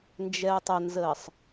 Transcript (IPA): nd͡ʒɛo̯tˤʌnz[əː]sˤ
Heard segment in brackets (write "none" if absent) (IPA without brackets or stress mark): əː